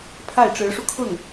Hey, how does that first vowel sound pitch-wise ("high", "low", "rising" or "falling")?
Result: falling